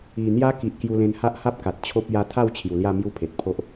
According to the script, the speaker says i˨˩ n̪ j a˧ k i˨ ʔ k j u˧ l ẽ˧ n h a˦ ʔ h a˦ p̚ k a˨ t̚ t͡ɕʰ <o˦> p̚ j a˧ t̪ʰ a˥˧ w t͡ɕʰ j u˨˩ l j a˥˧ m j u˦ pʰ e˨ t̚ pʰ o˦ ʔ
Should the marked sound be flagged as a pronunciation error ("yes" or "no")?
no